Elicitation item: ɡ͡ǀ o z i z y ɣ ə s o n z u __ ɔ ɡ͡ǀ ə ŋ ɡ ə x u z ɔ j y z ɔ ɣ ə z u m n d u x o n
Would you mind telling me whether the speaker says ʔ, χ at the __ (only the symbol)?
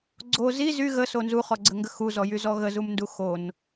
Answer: χ